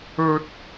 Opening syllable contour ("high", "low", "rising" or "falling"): high